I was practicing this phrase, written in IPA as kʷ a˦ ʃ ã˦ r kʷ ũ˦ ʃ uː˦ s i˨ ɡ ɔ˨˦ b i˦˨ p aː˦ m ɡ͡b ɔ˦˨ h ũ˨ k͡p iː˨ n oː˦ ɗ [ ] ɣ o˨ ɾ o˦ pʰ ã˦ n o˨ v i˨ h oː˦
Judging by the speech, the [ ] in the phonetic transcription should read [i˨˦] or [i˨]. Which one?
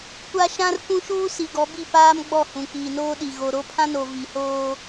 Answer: i˨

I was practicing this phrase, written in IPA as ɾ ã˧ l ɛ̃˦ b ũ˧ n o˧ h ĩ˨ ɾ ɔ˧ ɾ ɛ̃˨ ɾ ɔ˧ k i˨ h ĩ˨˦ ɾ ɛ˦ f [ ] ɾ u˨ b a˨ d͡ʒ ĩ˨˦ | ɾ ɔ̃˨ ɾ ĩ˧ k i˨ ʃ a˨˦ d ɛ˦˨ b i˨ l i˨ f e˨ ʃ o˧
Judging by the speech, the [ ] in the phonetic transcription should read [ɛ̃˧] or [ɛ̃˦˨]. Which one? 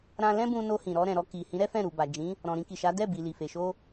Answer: ɛ̃˦˨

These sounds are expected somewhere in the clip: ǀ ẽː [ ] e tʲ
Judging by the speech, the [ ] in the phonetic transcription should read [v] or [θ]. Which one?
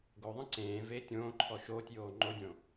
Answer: v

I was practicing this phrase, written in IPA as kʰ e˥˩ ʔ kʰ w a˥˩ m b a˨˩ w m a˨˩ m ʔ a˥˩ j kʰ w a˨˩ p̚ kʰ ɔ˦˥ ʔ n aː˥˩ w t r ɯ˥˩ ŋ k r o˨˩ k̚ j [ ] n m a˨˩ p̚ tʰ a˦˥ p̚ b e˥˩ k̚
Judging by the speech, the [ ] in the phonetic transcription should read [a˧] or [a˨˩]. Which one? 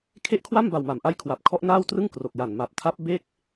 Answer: a˨˩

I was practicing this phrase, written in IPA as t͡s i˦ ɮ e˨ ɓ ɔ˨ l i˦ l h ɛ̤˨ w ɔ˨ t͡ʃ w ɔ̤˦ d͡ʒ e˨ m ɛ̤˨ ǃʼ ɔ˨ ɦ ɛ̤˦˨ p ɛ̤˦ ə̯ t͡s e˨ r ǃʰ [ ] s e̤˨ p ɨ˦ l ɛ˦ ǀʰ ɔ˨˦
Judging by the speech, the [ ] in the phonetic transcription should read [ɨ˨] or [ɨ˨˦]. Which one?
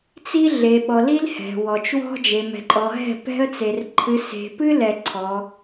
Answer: ɨ˨˦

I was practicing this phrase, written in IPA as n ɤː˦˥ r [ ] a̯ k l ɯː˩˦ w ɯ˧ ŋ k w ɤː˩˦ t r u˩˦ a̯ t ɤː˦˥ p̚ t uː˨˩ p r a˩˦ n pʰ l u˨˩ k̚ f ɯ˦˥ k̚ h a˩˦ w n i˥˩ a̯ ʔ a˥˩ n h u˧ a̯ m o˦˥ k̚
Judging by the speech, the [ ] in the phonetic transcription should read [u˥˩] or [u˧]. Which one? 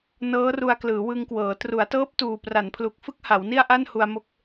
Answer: u˧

